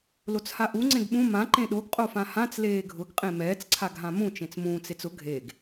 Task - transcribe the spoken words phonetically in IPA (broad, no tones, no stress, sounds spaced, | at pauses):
l o t͡s h a ʔ u ŋ͡ǀ ẽ ɡ ɓ ũ m ã ǃ ẽ ɗ o ɡ qʼ o f ã h ã t͡s l eː ɡʱ ʊ ɡ qʼ ẽ m ɛː t͡s ǀʰ a ɡ ɦ ã m ũ t͡ʃ ẽ t͡s m ũː t͡s e t͡s ʊ ɡʱ e ɡ